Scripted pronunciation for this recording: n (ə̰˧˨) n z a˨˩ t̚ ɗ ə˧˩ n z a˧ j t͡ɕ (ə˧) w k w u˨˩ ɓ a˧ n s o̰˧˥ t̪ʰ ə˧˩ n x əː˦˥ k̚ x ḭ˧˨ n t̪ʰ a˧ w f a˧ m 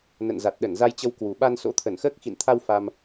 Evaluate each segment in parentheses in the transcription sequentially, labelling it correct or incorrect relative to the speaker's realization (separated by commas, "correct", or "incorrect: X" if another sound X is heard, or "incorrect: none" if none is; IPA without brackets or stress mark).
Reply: correct, correct